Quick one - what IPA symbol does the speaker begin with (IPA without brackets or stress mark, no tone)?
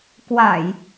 k